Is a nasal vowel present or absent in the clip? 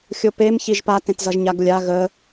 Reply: present